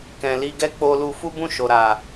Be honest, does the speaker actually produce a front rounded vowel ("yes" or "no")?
no